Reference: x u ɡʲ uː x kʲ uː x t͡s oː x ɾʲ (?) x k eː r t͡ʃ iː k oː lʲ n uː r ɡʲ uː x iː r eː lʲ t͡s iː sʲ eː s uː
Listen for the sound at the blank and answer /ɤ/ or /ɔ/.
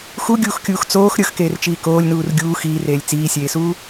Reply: ɤ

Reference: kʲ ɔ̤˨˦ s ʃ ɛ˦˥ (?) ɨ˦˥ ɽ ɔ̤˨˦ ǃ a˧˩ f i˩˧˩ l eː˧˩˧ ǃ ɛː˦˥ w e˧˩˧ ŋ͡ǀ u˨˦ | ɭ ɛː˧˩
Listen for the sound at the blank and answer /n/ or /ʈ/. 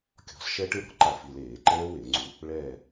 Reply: ʈ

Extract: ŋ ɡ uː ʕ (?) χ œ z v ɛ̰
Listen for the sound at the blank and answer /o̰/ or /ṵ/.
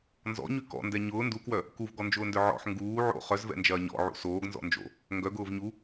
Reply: o̰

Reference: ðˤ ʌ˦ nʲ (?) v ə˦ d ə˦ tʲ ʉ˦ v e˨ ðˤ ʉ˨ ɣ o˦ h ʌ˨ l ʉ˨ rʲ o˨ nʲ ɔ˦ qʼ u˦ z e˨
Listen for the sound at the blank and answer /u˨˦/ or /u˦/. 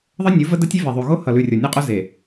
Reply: u˨˦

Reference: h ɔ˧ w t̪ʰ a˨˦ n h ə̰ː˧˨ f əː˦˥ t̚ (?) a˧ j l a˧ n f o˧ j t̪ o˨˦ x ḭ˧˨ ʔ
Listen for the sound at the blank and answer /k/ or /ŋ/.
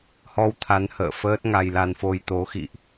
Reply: ŋ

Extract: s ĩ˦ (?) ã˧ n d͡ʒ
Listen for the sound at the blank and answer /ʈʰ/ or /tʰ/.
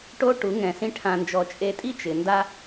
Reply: ʈʰ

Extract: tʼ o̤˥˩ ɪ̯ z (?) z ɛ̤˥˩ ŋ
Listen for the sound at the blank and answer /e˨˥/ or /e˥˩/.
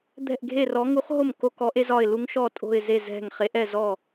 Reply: e˥˩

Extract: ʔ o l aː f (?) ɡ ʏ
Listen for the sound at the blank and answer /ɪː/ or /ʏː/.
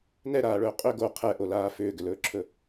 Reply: ʏː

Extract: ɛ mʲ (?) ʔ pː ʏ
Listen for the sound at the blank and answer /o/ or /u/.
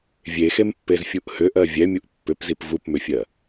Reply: u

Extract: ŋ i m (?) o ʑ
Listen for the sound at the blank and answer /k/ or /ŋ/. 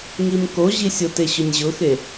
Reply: k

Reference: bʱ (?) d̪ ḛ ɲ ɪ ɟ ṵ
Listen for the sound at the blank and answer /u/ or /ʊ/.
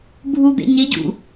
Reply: u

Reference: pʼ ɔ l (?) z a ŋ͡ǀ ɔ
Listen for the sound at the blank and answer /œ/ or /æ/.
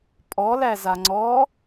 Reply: æ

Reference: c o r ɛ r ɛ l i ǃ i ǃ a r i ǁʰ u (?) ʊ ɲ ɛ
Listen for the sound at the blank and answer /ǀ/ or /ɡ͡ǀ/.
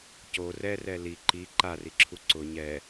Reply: ǀ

